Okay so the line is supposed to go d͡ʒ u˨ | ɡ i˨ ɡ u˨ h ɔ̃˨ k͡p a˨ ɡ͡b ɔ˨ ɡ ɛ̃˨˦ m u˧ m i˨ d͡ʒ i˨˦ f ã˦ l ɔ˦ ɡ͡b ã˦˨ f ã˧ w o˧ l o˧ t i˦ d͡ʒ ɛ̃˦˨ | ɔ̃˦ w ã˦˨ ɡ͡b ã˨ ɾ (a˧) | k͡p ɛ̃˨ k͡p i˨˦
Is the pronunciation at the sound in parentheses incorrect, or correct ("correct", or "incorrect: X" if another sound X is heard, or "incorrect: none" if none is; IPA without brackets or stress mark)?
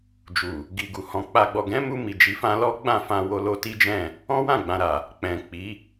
incorrect: a˨